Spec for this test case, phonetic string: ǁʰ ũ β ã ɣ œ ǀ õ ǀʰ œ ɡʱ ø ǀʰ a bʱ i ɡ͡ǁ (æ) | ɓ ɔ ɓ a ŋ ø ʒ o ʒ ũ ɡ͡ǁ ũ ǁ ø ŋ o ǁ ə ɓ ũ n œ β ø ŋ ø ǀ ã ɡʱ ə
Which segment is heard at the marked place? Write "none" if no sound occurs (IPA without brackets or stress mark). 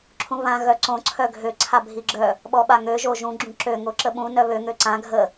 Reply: œ